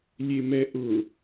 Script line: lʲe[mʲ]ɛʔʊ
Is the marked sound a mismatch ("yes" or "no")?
yes